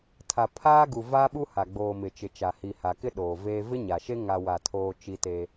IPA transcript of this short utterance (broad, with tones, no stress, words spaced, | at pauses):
tʰa˨pʰaː˦ɡu˨ vaː˦ɓu˦ ha˨ ɡ͡boː˨ mɪ˨ t͡ʃɪ˨t͡ʃa˨ hi˨ha˨kɪ˦ ɗoː˨veː˦ vɪ˦ɲa˨ʃe˦ ŋa˦wa˦˨tʰoː˦ t͡ʃi˦te˦